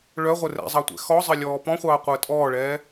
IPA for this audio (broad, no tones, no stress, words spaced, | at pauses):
ɭœʁʷɘ rɛ̰zˤɑtʷɛ̰ xɔzˤɘlʲɔː pɔ̃χʷɑːqʷəː tʼɔːɭɛː